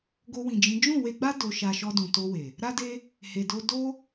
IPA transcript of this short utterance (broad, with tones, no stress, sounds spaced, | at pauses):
ɡ o˧ w ĩ˨ d͡ʒ ĩ˨˦ d͡ʒ ũ˦˨ w e˧ ɡ͡b a˦ d o˧ ʃ a˧ ʃ ɔ˧ d ũ˨ t o˧ w e˨ | ɾ a˦ d e˦ | h e˨ d o˧ d o˦